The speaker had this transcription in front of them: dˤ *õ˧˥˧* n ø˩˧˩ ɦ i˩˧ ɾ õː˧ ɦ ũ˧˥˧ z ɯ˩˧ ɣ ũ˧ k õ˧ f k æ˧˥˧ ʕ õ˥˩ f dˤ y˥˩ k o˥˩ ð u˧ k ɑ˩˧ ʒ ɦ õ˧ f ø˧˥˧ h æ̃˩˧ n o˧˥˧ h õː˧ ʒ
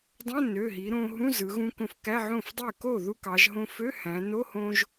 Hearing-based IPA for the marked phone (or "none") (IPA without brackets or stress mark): õ˧˥˧